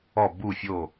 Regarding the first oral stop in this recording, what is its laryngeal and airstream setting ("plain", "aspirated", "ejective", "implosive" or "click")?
plain